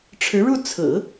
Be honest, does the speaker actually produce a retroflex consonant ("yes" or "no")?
yes